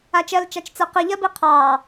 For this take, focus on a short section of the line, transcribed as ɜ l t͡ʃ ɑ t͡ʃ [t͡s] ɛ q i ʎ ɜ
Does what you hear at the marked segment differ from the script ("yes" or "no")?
no